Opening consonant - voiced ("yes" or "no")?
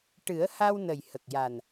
no